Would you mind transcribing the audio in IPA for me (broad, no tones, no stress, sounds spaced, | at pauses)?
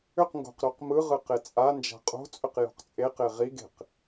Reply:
ʏ q ŋ ɡ o̤ q ɾ o q m ɯ ʁ ɯ q e t͡sʼ a n d͡ʒ a̤ qʼ o̤ t͡sʼ ʏ q j o̤ q t͡sʼ e q e ʁ i ɡ e̤ q